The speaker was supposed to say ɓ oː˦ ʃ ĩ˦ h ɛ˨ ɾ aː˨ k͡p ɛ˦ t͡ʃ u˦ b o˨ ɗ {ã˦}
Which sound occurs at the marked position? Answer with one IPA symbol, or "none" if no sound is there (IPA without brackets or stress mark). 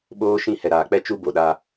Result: a˦